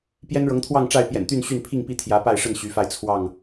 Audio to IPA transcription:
p j ɛ˦ n ɻ ɤ˨˦ ŋ t̪ʰ w ɑ˥˨ ŋ ʈ͡ʂ a˥˨ ɪ̯ p j ɛ̰˨˩ n t̪ y˥˨ n ɕ y˥˨ n pʰ i˥˨ ŋ p i˥˨ t̪ʰ j ä˨˦ p a˥˨ ɪ̯ ʂ ə˥˨ n ɕ y˨˦ f a˧ ɪ̯ t͡sʰ w ɑ˥˨ ŋ

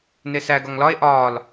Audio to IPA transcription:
n e s æ ɡ ɒ ŋ l ɒ e̯ ʔ ɒː l

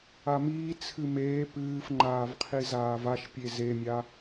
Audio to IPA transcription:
a m iː t͡sʰ ɨ m eː p ɨː f ŋ͡ǃ aː v qʰ i z aː v a ʃ pʲ e z e mʲ a

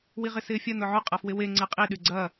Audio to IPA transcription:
w i ʁ ɪ s ɪː fʲ ɐ n ʊ ʕ ʊ qʼ ɐ f w ɪ w e ŋ͡ǀ e qʼ i ɗ y ɡ͡ǀ ɐ

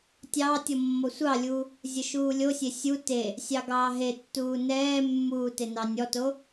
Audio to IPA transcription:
tʲ ɑ tʲ ɔ mː ɔ sʷ ɑ lʲ uː | zʲ ə ʃ uː lʲ o sʲ e sʲ u t e | sʲ ɑ ɡ ɑː ɦ e tː uː n ɛː mː uː t e n ɑ nʲ ɔ t o

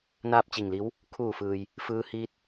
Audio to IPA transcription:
n aː˥˨ p̚ t͡ɕ i˧˩ ŋ l i˧˥ w | kʰ uː˧˩ f ɯː˩ j | f ɯː˧ h iː˧ t̚

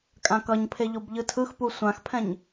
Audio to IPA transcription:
kʼ ã k ʌ ɲ pʰ e ʎ o b ʎ ɯ tʰ ɯ x p u sʷ ã x pʰ ɛ̃ ɲ

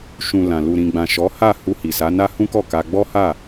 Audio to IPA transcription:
ʃ ũ˨ l ã˨ l u˨ ɾ ĩ˨ ɡ͡b ã˨ ʃ ɔ˨˦ h a˦˨ h u˧ h i˨ s a˨˦ n a˦ h ũ˦ k ɔ˦˨ k a˧ ɡ͡b ɔ˦ h a˦˨

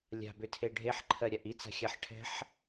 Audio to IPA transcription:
lʲ a̤ b ʏ tʰ e ɖʱ e ħ ǃʰ ɜ ɾʲ a ʔ i t͡s a̤ xʲ a ħ ʈʰ ɛ̤ ħ

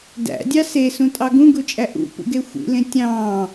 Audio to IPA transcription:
d æ̰ dʲ ɑ s e s ũ tʼ ɑ ɡ ũ ɡ u t͡ʃʼ æ ʔ ṵ p ṵ ɡ e xʷ ḭ l ẽ tʲ ɑ̃ː

